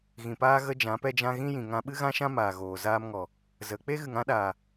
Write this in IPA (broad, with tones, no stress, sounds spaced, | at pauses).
ɣ ĩ˨ p aː˦ ɣ ə˦ d͡ʒ ã˨˦ p ɛ˦ d͡ʒ ã˦ ɣ ĩ˦ j ĩ˨ ŋ ã˧ ɓ ɨ˦ ɣ ã˦ ʃ ã˦ m aː˨ ɣ oː˨ z aː˦ m ŋ ɔ˨ | z ə˨˦ k͡p e˦ ɣ ɨ˨ ŋ ã˦ ɗ aː˨